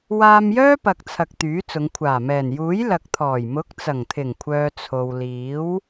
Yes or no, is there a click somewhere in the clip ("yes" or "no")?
no